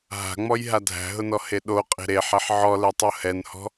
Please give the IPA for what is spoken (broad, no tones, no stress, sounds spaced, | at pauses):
ɦ a̤ ŋ͡m ɔ j ɦ a dʱ æ̤ ɦ ʊ n ɔ h e ɗ o qʼ e̤ ɾ e ħ æ ħ ʕ ɔ l ɛ tˤ o h ɛ n h ɔ̤